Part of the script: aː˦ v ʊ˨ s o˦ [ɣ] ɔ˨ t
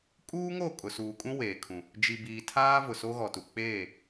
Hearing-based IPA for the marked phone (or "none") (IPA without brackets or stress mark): ɣ